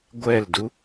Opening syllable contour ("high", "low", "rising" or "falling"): falling